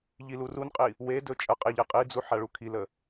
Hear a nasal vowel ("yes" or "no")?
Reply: no